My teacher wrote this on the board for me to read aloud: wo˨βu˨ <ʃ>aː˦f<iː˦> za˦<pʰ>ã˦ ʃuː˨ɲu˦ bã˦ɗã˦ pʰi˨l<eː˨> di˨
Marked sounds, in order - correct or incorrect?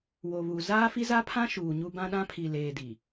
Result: incorrect: z, incorrect: i˦, correct, correct

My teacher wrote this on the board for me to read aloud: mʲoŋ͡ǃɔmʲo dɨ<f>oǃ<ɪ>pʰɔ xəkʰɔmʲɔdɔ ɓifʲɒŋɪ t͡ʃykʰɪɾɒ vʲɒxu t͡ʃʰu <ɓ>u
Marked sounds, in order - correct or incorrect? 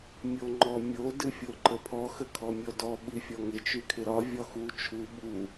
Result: incorrect: fʲ, incorrect: ə, correct

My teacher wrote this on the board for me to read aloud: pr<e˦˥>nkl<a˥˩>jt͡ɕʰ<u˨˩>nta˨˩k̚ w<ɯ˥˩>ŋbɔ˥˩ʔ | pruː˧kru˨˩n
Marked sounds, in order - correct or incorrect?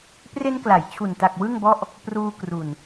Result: correct, incorrect: a˩˦, correct, correct

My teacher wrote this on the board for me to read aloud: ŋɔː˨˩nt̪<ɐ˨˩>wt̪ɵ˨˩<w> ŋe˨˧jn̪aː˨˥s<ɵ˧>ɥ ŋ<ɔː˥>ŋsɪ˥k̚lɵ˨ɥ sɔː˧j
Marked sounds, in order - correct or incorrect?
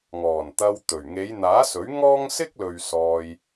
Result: incorrect: ɐ˧, incorrect: ɥ, incorrect: ɵ˨˥, correct

